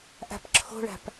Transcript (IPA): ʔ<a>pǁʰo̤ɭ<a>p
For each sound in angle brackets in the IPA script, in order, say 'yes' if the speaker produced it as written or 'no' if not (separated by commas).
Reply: no, no